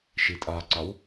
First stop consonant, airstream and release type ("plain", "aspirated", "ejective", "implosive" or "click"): ejective